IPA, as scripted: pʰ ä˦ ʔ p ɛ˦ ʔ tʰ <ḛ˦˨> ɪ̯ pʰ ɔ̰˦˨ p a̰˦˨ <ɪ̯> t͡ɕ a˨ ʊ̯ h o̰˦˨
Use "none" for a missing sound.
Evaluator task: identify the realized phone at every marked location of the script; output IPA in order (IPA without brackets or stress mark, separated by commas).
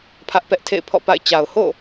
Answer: ḛ˦˨, ɪ̯